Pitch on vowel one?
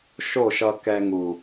falling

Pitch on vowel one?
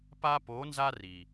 high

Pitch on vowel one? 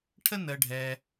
high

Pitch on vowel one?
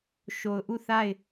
low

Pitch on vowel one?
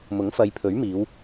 rising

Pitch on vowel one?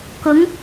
rising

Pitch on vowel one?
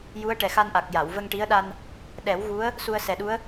rising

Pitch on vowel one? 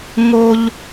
high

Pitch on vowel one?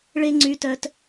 high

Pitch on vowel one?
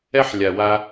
high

